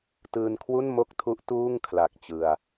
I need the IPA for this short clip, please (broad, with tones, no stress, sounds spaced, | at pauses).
t ɯː˧ n kʰ w u˥˩ n m o˥˩ k̚ tʰ u˦˥ ʔ t uː˥˩ ŋ kʰ l a˨˩ k̚ t͡ɕ ɯ˧ a̯